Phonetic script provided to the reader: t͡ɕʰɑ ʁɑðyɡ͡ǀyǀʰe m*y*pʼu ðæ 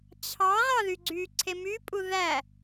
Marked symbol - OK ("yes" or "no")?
yes